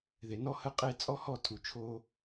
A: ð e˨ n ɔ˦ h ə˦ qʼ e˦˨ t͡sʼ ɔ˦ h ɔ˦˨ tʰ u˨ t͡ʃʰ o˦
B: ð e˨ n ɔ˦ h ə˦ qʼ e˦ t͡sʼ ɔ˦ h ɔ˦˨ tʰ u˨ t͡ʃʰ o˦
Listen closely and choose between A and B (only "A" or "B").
B